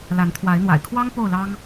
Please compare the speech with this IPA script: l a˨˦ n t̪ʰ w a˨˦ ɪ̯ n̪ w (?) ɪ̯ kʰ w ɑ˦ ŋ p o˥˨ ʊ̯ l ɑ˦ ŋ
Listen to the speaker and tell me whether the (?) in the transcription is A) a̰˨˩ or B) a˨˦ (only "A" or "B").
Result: A